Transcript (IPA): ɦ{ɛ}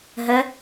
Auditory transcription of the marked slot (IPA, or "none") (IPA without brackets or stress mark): ə